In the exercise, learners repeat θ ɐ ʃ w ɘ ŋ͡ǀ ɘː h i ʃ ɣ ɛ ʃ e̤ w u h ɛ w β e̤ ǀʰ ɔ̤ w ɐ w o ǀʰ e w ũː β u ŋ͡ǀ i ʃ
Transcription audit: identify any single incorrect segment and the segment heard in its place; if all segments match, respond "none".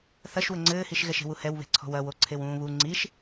none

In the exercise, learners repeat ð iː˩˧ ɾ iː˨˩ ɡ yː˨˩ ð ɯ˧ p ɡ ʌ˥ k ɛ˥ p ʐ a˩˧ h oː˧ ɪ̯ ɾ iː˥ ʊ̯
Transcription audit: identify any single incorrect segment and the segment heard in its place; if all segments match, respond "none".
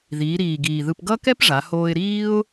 yː˨˩ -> iː˨˩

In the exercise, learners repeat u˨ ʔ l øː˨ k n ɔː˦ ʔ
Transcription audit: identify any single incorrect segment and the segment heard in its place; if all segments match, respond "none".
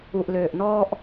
k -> ʔ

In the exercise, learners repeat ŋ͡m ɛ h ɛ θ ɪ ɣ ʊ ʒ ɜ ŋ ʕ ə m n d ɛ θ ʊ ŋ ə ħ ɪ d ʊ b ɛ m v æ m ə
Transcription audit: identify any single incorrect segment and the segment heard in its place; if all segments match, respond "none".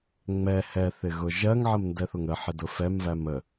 b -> f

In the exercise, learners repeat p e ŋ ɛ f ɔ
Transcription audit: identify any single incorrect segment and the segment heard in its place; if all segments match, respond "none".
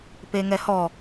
f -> h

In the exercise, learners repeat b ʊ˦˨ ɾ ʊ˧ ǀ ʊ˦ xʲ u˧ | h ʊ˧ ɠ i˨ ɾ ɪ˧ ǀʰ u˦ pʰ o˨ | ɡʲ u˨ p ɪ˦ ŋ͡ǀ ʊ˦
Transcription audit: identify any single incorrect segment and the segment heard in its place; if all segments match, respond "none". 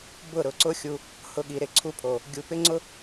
none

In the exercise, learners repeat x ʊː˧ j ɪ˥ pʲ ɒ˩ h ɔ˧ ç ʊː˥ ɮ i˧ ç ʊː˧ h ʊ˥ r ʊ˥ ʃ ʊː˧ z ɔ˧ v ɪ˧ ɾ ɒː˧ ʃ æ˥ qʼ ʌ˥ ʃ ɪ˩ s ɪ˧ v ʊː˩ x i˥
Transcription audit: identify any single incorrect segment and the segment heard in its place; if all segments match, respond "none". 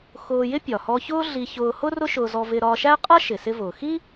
none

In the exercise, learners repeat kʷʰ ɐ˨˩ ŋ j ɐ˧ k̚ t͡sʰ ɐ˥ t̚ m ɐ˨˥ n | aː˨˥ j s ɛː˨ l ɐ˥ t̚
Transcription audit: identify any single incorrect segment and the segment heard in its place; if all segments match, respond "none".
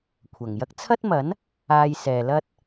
aː˨˥ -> aː˧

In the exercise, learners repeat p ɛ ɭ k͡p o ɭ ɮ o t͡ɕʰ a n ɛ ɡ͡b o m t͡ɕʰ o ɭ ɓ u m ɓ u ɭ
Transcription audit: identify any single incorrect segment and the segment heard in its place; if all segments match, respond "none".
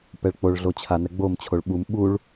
none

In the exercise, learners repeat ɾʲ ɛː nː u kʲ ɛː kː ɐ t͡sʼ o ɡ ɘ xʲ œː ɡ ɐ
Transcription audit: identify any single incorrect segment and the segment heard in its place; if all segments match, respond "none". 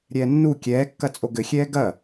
œː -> ɛː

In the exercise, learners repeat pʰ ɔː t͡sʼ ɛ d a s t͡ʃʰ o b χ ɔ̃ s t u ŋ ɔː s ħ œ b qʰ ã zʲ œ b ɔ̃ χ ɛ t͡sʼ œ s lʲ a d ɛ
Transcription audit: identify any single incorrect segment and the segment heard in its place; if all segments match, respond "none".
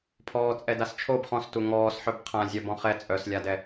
none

